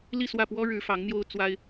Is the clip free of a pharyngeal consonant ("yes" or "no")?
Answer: yes